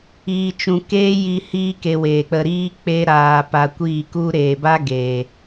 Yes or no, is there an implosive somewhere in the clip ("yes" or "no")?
no